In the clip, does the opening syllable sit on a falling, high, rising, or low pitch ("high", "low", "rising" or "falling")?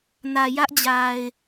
low